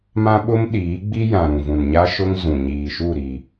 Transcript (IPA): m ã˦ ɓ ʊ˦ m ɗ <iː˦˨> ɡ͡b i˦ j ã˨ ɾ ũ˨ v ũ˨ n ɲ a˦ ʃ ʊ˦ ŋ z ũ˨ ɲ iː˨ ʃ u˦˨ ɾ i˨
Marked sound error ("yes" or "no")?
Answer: yes